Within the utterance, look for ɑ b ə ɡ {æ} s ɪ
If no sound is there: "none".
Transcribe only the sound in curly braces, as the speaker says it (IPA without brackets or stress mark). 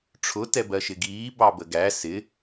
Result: æ